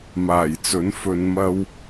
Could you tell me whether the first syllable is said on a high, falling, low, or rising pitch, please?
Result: low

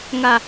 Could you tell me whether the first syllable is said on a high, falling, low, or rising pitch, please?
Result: low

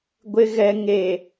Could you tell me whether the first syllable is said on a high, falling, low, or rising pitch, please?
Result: low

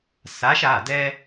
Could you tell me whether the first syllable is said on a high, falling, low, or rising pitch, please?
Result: rising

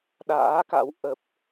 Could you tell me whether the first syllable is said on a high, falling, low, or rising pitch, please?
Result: rising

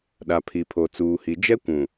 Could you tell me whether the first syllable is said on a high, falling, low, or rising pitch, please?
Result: low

